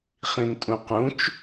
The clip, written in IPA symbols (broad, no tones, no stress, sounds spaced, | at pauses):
χ ĩ n tʼ ũ q ũ t͡ʃ